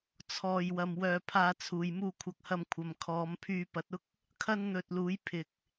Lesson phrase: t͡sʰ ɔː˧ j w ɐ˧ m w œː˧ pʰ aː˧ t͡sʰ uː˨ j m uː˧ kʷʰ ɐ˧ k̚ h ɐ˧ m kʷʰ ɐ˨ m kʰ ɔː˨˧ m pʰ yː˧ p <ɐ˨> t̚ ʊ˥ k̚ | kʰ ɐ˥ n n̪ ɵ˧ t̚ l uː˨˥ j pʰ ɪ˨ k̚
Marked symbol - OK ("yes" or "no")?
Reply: no